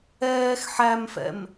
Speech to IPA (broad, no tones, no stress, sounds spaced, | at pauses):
ɛː x ħ æ m f ɛ̰ m